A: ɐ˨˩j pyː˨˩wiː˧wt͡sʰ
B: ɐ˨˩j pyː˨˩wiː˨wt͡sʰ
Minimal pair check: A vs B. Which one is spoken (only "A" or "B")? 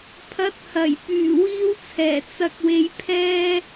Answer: A